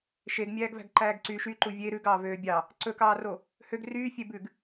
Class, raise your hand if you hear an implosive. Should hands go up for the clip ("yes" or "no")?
no